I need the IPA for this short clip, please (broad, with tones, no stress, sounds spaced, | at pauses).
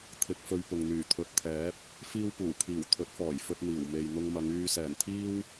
t̪ʰ ɪ˧ k̚ f ɵ˧ ɥ p ʊ˨ ŋ n̪ yː˨˩ t̪ʰ ɵ˨ t̚ t̪ʰ ɛː˨˥ p̚ | f iː˥ w p uː˨˩ kʰ iː˨˩ w t̪ʰ ɵ˨˥ t̚ f ɔː˨˩ j f ɵ˧ t̚ n̪ iː˨˩ w m e˨ j n̪ ʊ˧ ŋ m ɐ˨˧ ŋ yː˧ s ɛː˨˩ n t̪ʰ iː˥ w